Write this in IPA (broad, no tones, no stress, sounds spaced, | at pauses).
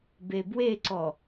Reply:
b e b w e ǀ ɔ